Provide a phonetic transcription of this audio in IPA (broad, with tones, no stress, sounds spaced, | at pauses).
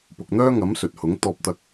p ʊ˨ k̚ n̪ œː˥ ŋ ɐ˨˥ m s ɵ˨ t̚ h ʊ˨˥ ŋ t̪ ɔː˧ p̚ t̪ ɐ˧ k̚